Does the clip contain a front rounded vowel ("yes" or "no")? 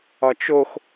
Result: no